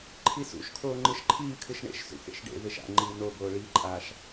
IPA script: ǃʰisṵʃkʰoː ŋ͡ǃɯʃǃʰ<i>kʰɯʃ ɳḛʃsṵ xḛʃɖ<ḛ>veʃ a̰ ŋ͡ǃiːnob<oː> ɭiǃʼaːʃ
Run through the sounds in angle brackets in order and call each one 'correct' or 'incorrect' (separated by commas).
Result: incorrect, correct, correct